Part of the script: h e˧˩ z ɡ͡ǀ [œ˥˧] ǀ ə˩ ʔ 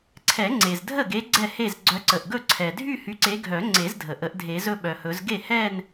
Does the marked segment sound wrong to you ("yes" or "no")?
yes